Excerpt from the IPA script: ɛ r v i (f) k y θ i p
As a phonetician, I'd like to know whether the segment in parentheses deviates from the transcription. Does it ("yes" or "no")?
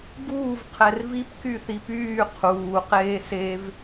yes